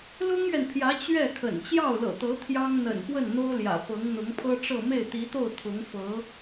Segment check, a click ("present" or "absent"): absent